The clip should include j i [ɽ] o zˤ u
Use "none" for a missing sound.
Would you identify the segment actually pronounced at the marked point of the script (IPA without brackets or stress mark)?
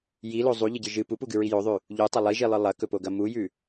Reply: l